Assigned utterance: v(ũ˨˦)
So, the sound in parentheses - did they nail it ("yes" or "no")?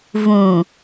no